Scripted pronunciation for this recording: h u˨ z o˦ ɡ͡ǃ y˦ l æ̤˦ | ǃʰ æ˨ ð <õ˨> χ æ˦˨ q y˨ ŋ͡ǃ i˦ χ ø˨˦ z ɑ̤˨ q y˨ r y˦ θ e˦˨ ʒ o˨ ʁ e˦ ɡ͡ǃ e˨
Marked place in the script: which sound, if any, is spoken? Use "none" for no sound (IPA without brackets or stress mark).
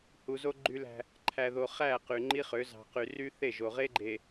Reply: o˨